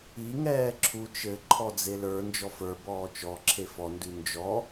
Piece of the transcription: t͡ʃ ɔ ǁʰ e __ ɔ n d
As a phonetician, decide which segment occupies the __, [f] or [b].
f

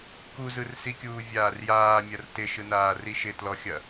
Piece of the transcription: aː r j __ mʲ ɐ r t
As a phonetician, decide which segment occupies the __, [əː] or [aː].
aː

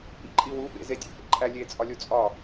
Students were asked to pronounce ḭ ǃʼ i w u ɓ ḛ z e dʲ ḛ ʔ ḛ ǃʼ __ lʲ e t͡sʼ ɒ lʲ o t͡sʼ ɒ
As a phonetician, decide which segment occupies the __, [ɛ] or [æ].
æ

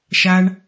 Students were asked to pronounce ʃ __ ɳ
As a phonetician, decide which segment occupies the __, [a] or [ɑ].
a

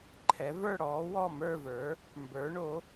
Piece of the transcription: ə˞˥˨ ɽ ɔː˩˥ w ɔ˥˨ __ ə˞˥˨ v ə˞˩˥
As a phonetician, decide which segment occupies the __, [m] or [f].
m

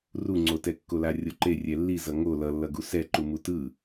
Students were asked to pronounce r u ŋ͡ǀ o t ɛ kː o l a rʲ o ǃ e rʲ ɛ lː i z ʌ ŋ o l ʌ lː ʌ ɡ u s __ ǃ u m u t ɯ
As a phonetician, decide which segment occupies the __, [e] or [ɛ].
ɛ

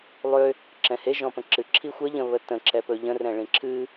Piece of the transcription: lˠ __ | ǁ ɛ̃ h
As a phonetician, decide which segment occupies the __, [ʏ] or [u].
ʏ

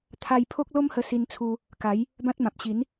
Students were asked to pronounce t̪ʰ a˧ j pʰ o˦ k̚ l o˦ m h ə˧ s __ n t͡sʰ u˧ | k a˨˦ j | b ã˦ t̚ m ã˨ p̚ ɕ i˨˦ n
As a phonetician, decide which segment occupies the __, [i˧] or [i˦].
i˧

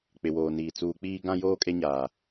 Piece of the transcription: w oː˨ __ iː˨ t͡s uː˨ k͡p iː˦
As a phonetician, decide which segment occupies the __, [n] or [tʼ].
n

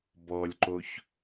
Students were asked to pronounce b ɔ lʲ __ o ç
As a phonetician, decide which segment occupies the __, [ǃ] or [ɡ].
ǃ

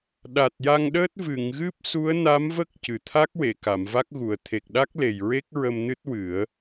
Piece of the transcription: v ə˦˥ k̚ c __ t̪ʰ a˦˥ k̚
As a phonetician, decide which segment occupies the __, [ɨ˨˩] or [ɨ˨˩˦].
ɨ˨˩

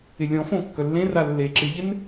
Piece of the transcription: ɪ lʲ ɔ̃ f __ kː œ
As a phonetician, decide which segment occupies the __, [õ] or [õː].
õ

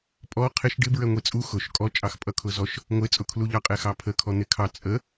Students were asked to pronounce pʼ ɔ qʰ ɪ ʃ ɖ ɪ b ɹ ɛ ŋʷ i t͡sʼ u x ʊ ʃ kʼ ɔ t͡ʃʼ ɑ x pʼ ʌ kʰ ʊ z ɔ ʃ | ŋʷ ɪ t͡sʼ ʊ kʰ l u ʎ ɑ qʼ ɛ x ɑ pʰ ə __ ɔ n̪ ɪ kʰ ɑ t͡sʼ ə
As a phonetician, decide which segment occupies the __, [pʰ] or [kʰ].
kʰ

